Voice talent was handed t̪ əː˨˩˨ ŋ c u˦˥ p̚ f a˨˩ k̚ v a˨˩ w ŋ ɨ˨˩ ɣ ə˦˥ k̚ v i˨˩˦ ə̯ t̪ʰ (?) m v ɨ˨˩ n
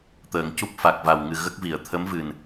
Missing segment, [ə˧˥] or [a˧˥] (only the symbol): ə˧˥